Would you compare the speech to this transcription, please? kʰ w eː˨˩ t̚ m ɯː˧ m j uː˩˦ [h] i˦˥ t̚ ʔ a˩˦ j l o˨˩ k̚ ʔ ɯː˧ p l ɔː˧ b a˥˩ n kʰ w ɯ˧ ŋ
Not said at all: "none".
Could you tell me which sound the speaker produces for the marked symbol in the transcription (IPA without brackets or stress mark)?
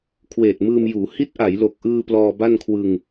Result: h